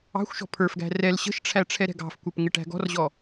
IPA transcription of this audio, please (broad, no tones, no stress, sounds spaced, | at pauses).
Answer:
ɑ̤ xʷ ʃ ɔ̤ pʰ ə˞ f ɡ æ̤ r ɛ l ɕ ə̤ ʃ ʈ͡ʂʰ æ ʈ͡ʂʰ ɛ ɾ ɛ̤ ɡ ɑ̤ f kʷ ə˞ p ŋ ɪ ʈ æ̤ ɡ ɔ̤ r ʑ ɔ